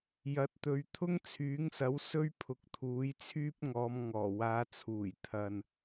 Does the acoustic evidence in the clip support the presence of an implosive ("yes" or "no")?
no